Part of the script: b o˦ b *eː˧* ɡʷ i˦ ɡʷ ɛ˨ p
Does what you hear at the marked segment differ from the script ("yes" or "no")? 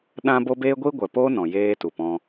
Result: yes